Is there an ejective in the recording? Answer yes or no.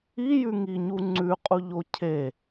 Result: yes